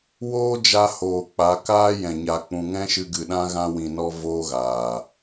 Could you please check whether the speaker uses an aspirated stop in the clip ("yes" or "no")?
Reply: no